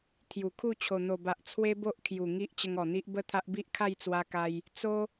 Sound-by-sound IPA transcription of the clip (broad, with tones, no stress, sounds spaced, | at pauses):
t̪ʰ j u˨˩ kʰ u˥˧ t͡ɕʰ o˨˩ n̪ o˨˩ b a˨ ʔ t͡sʰ w e˦ b o˦ ʔ kʰ j u˨˩ ŋ i˦ ʔ t͡ɕ ə˧ ŋ ɔ˨˩ n̪ i˦ ʔ b ə˦ t̪ʰ a˦ ʔ b i˦ ʔ kʰ a˥˧ j t͡s w a˧ k a˧ j | t͡s o˦